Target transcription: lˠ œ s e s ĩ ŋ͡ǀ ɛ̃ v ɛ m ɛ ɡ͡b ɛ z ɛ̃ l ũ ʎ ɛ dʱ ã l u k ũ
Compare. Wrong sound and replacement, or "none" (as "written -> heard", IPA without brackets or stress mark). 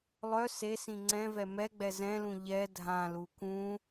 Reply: none